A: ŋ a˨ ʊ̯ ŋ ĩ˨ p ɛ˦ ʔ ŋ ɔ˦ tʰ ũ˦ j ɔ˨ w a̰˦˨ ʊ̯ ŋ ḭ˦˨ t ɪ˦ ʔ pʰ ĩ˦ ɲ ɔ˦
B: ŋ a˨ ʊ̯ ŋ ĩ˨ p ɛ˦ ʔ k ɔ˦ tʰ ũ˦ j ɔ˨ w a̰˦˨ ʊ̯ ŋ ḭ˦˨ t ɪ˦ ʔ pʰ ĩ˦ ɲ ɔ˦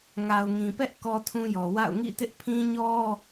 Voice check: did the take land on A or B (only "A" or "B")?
B